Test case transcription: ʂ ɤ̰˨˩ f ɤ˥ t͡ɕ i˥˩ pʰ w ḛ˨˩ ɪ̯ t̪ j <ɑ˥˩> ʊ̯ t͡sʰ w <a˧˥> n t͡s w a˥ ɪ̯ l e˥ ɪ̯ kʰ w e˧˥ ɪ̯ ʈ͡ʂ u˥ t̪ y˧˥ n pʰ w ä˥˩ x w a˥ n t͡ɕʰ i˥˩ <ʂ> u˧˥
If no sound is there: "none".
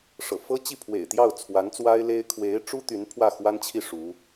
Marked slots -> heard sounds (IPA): ɑ˥˩, a˧˥, ʂ

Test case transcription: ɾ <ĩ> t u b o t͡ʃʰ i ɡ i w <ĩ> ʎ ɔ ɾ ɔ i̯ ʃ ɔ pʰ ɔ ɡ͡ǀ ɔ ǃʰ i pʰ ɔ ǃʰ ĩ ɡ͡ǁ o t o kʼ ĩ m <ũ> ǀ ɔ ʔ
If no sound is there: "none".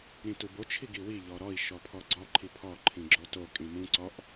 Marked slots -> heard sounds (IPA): ĩ, i, ũ

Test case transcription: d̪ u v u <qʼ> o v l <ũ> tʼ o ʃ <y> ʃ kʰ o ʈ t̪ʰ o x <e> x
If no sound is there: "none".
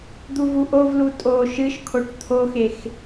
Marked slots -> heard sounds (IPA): ʔ, u, ɨ, e

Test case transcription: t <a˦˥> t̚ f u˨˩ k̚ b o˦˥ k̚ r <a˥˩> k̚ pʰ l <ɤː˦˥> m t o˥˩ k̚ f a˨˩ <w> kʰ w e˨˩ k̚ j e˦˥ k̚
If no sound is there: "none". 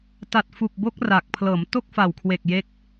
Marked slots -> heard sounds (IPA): a˨˩, a˨˩, ɤː˩˦, w

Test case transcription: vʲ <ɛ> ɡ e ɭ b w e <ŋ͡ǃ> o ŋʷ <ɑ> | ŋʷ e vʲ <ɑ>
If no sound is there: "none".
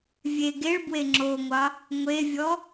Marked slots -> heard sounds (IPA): e, ŋ͡ǁ, ɑ, ɔ

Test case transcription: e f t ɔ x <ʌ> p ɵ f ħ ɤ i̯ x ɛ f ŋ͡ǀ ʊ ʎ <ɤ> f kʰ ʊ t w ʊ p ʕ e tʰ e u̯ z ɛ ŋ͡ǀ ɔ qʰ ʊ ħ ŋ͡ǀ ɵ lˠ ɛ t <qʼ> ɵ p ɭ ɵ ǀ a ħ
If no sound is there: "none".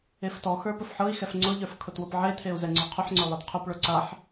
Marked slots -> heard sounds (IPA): ə˞, ə˞, qʰ

